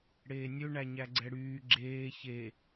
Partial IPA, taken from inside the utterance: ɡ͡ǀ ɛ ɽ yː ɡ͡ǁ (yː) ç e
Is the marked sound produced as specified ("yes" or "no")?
no